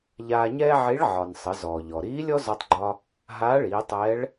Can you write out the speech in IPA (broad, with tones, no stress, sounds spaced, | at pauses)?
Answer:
ʎ aː˧ ɲ ɛː˥ ʕ i˧˥ ɭ ʕ ɒ˩ n sˤ ə˩˧ z ɔː˩ ʎ ɔ˩ ɾ iː˧˥ lʲ ɔ˥ z ɒ˧ tˤ ɡ͡ǃ ɒ˧ | ɦ aː˧˥ ɭ iː˩˧ tˤ ɛː˧˥ ɭ